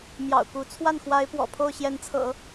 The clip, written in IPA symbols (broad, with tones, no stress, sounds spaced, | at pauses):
m j ɑ̰˨˩ ʊ̯ k u˧˥ t͡sʰ w a˥˩ n x w a˧˥ ɪ̯ p w ɔ̰˨˩ pʰ o˥˩ ʊ̯ ɕ j ɛ˧˥ n t͡sʰ ɤ̰˨˩˦